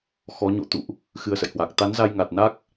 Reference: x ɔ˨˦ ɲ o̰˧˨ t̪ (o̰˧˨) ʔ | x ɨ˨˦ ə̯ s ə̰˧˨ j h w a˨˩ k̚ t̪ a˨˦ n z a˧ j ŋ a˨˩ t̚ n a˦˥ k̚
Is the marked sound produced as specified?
no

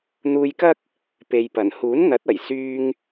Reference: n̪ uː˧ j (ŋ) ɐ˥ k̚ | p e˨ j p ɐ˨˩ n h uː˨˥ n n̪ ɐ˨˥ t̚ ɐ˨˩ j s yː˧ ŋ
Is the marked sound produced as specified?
no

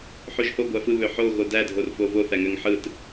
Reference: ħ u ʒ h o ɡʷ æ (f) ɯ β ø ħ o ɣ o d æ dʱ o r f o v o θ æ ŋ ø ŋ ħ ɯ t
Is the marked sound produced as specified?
yes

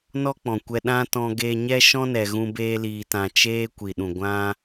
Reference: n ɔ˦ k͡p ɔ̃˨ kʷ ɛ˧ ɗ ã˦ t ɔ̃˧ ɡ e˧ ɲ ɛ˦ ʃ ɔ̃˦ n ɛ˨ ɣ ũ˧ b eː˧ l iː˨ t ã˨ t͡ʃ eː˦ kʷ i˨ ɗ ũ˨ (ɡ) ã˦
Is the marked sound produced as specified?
no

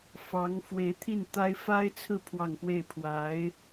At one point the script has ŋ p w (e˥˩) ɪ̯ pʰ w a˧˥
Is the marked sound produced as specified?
yes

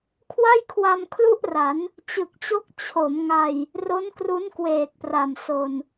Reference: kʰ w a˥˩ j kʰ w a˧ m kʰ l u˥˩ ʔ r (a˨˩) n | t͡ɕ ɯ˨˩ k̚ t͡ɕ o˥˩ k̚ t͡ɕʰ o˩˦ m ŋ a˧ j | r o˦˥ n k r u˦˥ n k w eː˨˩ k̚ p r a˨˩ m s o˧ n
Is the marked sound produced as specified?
no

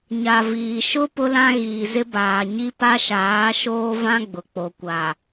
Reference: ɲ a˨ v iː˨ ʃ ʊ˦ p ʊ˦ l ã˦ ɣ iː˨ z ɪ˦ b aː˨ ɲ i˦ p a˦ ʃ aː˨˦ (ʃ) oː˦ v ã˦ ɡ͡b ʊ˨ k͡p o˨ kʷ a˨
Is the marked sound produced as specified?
yes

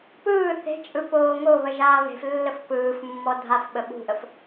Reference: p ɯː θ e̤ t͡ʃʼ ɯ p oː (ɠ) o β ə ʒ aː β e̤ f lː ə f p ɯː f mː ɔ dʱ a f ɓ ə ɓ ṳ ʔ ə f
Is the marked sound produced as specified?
no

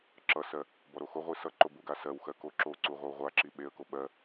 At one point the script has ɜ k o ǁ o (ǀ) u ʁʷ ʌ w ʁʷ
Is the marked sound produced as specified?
yes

